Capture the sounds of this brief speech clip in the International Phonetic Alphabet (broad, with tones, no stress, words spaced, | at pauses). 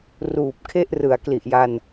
ruː˨˩p̚kʰe˥˩ʔ rɯ˩˦a̯kli˨˩ʔja˧n